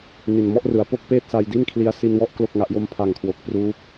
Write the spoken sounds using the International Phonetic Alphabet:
n i˨˩ n m ɔ˥˩ ʔ r ɯ˩˦ a̯ p o˦˥ k̚ p eː˥˩ t̚ s a˧ j d i˥˩ n kʰ l i˧ a̯ s i˧ n w ɔ˦˥ ʔ k l o˥˩ k̚ ŋ a˦˥ ʔ j o˦˥ m pʰ a˨˩ ŋ kʰ w o˨˩ k̚ p r uː˦˥ p̚

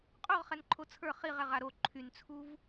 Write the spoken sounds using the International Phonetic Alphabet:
qʼ o ʁ χ ɛ n ǃʰ o t͡sʰ ə˞ χ i ʁ ɛ ʁ a ɾ o ǃʰ y n t͡sʰ u v

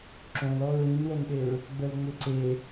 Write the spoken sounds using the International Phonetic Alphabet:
ǁ õ l ɔ ɹ ĩ n w ə n ɗ e ɹ | ɡ͡b ə l ŋ͡m ʏ ǀ e

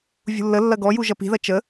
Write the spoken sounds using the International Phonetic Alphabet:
vʲ ṳ lː ə lː ɐ ɡ ɔ j u ʒ ɐ p i̤ ð ɐ t͡ʃ ə

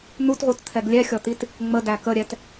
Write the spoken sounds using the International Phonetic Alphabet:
n̪ u t ʁ u t t̪ʰ ɛ ɡ lʲ ɛ xʲ ɔ t̪ i t | ŋ͡m ə d æ k ə ɾʲ ɛ t

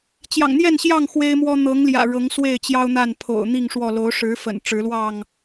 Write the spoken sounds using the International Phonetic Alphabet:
t͡ɕ j ɑ̰˨˩ ŋ n̪ j ɛ˥˨ n ɕ j ɑ˥˨ ŋ x w e˦ ɪ̯ m w ɔ˦ n̪ ɤ˨˦ ŋ l j ä̰˨˩ ɻ ɤ˨˦ ŋ s w e˥˨ ɪ̯ t͡ɕ j ɑ˦ ʊ̯ n̪ a˥˨ n pʰ o̰˨˩ ʊ̯ n̪ i˥˨ ŋ ʂ w ɔ˥˨ l o˨˦ ʊ̯ ʂ ɻ̩˨˦ f ə̰˨˩ n ʈ͡ʂ ɻ̩˨˦ l w ɑ˥˨ ŋ

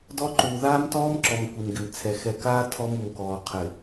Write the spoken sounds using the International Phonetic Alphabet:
d ɔ˦ ǃ uː˨ ð aː˦ m t ɔː˦ m ǁ ɔ˨ m kʷ i˨ m ɡ ɪ˨ m t͡sʰ ɛ˨ x ɛ˨ k aː˦ tʰ ɔ˦ m u˨ m k ɔː˨ qʰ ɪ˨

